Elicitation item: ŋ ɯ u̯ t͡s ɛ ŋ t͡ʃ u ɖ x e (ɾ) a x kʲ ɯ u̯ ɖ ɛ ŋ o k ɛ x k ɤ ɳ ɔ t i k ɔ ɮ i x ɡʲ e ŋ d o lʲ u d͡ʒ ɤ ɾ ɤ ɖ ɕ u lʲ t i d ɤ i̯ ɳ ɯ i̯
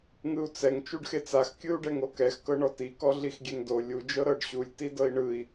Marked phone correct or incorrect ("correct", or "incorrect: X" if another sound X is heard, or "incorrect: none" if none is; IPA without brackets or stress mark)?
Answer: incorrect: t͡s